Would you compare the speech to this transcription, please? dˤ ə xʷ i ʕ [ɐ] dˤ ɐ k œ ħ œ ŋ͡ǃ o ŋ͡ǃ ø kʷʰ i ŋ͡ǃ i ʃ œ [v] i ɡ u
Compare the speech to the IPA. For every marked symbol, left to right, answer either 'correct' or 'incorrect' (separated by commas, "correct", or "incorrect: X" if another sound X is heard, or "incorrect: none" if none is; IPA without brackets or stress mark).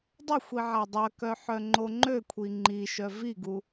incorrect: a, correct